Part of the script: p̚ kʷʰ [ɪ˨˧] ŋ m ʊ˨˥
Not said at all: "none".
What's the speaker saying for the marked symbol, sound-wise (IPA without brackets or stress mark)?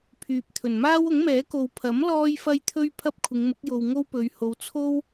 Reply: ɪ˨˧